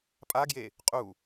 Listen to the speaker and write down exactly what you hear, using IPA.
pʼ a ɡ j e | qʼ u

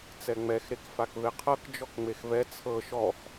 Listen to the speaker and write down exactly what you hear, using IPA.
t͡s ɛ ŋ͡m ɛ x ɾ e k f a k v e qʰ ɤ k d͡ʒ ɔ k ŋ͡m e x v ɛ t͡sʰ ɤ ʃ ɔ x

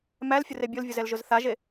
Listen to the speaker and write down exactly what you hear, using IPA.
m æ l fʲ ʊ r e bʲ ʊ l vʲ ʊ z ɛ l ʒ ʊ z θ a ʒ e

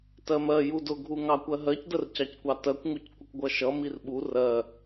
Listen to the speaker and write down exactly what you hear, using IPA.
t ɜ m ɜ j u d ʊ ɡʱ u ŋ ɑ kʷ ɜ ɦ ɜ c d ə r c ɑ c kʷ ɑ t ɜ kʷ ŋ u c kʷ ə kʷ ɡʷ ʌ ʃ ʌ m i r ɓ u r ɜ

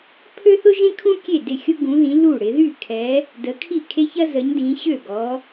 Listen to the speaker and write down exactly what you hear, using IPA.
pʰ ø˥ θ ʊ˥ ʒ ẽ˥ kʰ ũ˥ kʲ e˥˩ d ɪ˥˩ xʲ ʊ˥ ɡ ũ˨˦ ð ĩ˨˦ l u˥˩ ɽ ɪ˨˦ ð y˥˩ kʰ ɛ˨˦ | d ə˨˦ kʰ i˥˩ kʰ e˥ ç ɐ˥ z ə˨˦ ɲ d ĩ˨˦ ɕ ø˥˩ ɡ ɔ˨˦

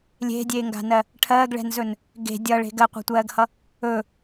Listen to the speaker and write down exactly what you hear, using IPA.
lʲ e̤ dʲ eː ŋ ɡ a̤ n ɜ | ʈʰ ɜː ɡ ɭ ɛ̤ n z ɵ n | ɡ e̤ dʲ ʌ ɭ e̤ ɡ ɜ qʷ a̤ tʷ ɜː ɡ h ʌ | ɵ

